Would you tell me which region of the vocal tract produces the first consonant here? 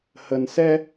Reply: throat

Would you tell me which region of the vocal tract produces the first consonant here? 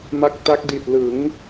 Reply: lips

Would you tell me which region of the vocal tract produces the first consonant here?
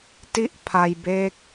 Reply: tongue tip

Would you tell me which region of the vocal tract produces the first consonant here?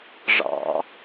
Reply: retroflex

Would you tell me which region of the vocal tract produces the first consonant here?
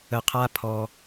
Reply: uvula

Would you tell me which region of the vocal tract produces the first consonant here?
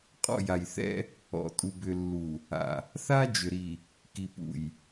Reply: uvula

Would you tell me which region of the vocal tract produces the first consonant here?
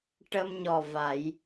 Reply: retroflex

